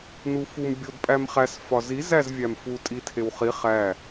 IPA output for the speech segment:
nufum bʲodpʼæmχæs fɒzi zæzvʲæmfu tʼitʰewχi χæ

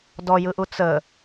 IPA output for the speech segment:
dɔjɯʔu t͡sə

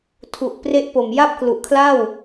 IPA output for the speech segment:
tʰu˨˩ʔpre˦˥ʔpo˨˩m ja˥˩p̚klu˨˩ʔkʰla˥˩w

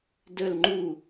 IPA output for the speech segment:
dəl ŋ͡ǃu

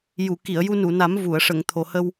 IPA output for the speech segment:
ju˨˩˨ ki˨˩˨ə̯ ju˧nu˨˩˨na˨˩˦m vu˨˩˨ə̯ ʂə˨˩˨ŋ t̪ʰo˨˩hə˧w

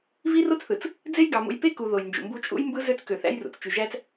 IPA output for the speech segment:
vi˦ro˦t͡sθɯ˨t͡s | d͡ze˦jɡɑ˨ mṵ˨jpe˦ ku˨ ðo˨jnd͡ʒṵ˨mbu˦ t͡ʃʼṵ˦jmbɯ˦ zø˦t͡skø˨θæ̰˦jrṵ˨t͡s t͡ʃy˨ʒæ˦t͡s

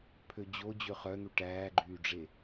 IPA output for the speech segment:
pʰød͡ʑo d͡ʑøχœn̪u ʈæːɡ͡ǃyːɖ͡ʐe

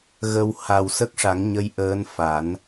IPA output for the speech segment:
ɣə˧w ha˨˩w sə˦˥k̚ʂa˨˩˦ŋ ɲə˧˥j ʔəː˧˥nfa˨˩˦n

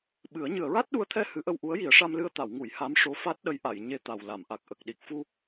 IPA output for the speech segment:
ɓɨ˨˩˦ə̯ ɲɨ˨˩˨ə̯ɹa˦˥t̚ɗu˧˥ə̯t̪ʰɛ˧ hɨ˧˥ʔə˧w ʔu˧˥ə̯ji˨˩˦ə̯ʂa˧mlɨ˧ə̯ t̪a˨˩˨wŋu˨˩˨j ha˧˥mʂo˧˥ fa˦˥t̚ɗə˧˥jʔa˨˩˨j ɲe˧t̪a˨˩w la˨˩˨mʔa˨˩k̚ ʔə˨˩k̚ɗi˨˩k̚fu˧

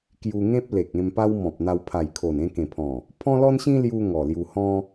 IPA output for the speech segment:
kju˧ŋẽ˦p̚le˨k̚ẽ˧m pa˦wmɔ̃˨p̚n̪a˧w pʰa˨˩jkʰo˨˩n ẽ˧kẽ˨˩pʰɔ̃˨˩ | pʰɔ̃˦lɔ˦nɕĩ˦ lju˧ ŋɔ˨˩lju˧ hɔ̃˦

